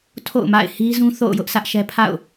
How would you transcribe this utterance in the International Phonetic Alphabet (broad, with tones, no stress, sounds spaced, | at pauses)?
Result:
tʰ o̰˦˨ ʊ̯ m a̰˦˨ ɪ̯ h i˦ z ũ˦ θ o̰˦˨ ʊ̯ j ʊ˦ ʔ sʰ ä˦ ʔ ʃ ɛ˦ pʰ a̰˦˨ ʊ̯